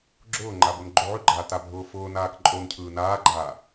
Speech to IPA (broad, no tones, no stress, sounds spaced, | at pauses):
ɡ͡ǁ ʊː ŋ͡ǃ a b ʊ n ɡ͡ǃ o ʕ ʉ ɡ͡ǃ aː t a bʱ ʊː f ʊː n aː k ǃʼ o n cʰ ɯː n aː ɡ͡ǃ aː